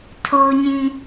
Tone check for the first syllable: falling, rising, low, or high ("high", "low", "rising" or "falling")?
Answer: high